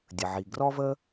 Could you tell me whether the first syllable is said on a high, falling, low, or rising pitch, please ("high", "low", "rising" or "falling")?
low